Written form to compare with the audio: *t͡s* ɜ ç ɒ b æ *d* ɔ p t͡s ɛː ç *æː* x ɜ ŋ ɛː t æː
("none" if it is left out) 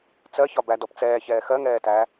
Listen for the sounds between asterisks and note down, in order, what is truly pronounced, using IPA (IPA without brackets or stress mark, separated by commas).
t͡s, d, ɛː